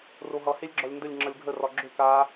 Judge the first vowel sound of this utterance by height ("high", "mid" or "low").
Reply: mid